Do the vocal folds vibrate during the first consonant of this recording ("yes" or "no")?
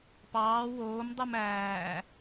no